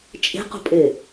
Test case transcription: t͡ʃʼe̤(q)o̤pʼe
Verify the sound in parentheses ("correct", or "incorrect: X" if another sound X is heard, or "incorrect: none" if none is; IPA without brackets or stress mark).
correct